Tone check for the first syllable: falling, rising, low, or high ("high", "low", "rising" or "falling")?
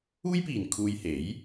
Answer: high